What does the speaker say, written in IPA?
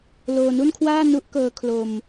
loː˧nu˥˩nkʰwaː˥˩ nu˦˥ʔkɤː˧ kʰlo˧m

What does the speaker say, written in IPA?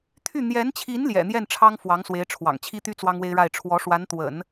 t̪ʰy˥˩ n̪jɛ˧˥nt͡ɕʰi˧˥n ljɛ̰˨˩n̪jɛ˥˩n ʈ͡ʂʰɑ˥ŋfwɑ˧˥ŋswe˧˥ɪ̯ ʈ͡ʂʰwɑ̰˨˩ŋt͡ɕʰi˥t̪y˥ t͡swɑ˥ŋwe˥ɪ̯ɻa˥˩ɪ̯ ʈ͡ʂʰwɔ˧˥ʂwa˧˥nt̪wə̰˨˩˦n

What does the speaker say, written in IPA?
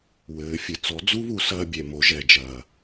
wɘː˨˦fʲɨ˨ t͡sɔ˨˦d͡zu˦βu˨˦ sɐː˧bʲe˨ mo˨˦ʒɛ˨d͡ʒɐː˨

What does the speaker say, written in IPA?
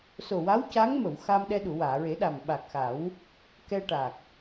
so˨˩wa˧˥w ca˧˥ŋ mə˨˩˨w xa˧mɗɛ˧ɗu˨˩˨ waː˨˩˨ɹe˨˩˦ ɗa˨˩mɓa˨˩k̚xa˨˩˦w | kɛ˧ʈa˨˩k̚

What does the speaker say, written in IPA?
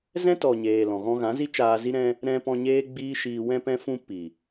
zɛ̃˦tɔ˨ɲeː˨ lɔ̃˨ɣɔ̃˧ɣã˨˦zi˦ t͡ʃaː˧zi˦ɾɛ̃˦ | ɾɛ̃˧pɔ̃˧ ɲeː˧ ɡ͡biː˦ʃiː˧ wɛ̃˦pɛ̃˦fũ˦ pi˨

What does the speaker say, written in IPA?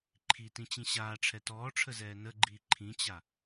ǃʰitĩt͡ɕĩ ɕaːʈ͡ʂʰɛ tɔːʈ͡ʂʰəzɛː nəɡ͡ǃiː ǃʰĩt͡ɕa

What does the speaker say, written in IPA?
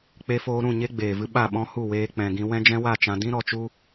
k͡pe˧foː˧ɾũ˦˨ ɲe˦ɡ͡beː˨vɨ˧ ɓa˦˨ɓɔ̃˦hu˦˨ weː˦k͡pɛ̃˧ɡĩ˦ wɛ̃˦d͡ʒɛ̃˦wa˦˨t͡ʃã˧ dĩ˦ ɾɔ˧t͡ʃu˦

